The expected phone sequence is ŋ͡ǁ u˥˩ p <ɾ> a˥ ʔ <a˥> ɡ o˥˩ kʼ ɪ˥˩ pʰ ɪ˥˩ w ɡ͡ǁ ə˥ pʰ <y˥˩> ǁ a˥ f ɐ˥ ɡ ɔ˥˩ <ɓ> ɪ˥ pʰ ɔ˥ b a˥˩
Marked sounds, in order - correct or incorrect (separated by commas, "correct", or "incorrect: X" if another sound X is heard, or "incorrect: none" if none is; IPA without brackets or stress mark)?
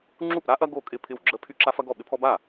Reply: correct, incorrect: ɐ˥, correct, correct